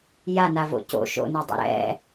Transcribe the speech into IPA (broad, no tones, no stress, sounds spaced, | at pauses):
j a n a v o̰ c o̰ ʃ o̰ n e dˤ ɛ̰ ɾ ɛ̰